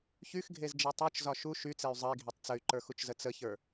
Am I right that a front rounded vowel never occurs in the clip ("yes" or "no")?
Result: no